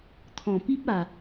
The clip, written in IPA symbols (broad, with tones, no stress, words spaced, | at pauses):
t̪ʰɔ̃˨˩pi˦p̚a˨˩